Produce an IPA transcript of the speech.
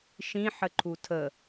ʃ ĩ ħ ə ǃʰ u tʰ ə

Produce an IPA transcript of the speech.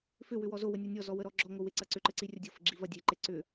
f ʏ w ʏ w ɔ z o w ə nʲ ɔ nʲ ɔ z ɔ w ə ɾ ɔ ɡ͡ǁ ɔ ŋ o w e ǀ ɐ ǀ ʏ ǃ ɘ ǀ i rʲ ɐ dʲ o f ɘ ɡ͡ǁ i v ɐ dʲ e ǃ e ǀ ʏ

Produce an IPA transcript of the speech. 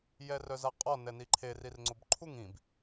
j ɛ r œ z a qʼ ɔ n ɛ n i ǃʰ e r i r ŋ͡ǀ o b ǃʰ u ŋ ĩ b

